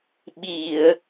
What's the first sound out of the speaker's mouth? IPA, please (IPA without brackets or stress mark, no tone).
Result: ɓ